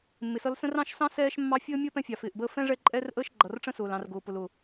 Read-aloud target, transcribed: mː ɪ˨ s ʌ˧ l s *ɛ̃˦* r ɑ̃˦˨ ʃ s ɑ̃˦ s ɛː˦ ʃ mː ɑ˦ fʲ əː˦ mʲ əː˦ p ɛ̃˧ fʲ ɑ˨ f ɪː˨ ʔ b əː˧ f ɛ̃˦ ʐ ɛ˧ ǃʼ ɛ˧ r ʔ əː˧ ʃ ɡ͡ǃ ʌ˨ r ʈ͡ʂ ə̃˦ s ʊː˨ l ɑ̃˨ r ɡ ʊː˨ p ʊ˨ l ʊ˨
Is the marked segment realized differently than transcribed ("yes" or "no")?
yes